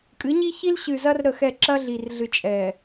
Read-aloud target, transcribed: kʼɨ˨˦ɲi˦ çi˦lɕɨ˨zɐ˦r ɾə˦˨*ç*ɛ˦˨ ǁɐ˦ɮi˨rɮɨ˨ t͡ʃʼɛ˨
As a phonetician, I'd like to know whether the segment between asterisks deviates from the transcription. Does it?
yes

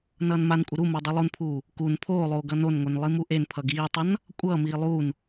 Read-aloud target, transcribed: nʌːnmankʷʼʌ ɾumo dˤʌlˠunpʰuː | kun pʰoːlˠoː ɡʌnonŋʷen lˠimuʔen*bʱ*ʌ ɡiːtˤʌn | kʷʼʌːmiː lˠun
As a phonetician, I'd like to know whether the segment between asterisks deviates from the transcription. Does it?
yes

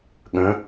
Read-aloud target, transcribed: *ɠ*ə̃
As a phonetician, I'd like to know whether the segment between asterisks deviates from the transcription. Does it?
no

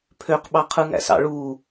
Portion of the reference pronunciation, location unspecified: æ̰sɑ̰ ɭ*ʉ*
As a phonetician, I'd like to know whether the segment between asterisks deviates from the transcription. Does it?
yes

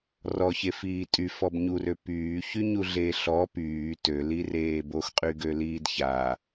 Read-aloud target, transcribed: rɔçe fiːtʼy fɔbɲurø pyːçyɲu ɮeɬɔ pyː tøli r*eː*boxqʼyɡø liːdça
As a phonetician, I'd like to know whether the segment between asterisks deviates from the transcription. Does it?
no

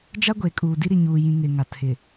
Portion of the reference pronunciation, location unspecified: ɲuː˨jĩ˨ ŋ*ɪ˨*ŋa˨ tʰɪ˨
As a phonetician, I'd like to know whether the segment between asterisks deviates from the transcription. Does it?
no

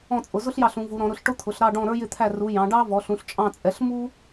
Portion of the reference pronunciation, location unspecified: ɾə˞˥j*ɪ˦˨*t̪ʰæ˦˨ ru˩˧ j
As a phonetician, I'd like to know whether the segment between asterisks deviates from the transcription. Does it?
no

